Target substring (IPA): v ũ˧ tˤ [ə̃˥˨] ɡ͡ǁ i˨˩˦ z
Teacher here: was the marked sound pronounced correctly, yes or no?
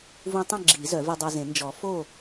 yes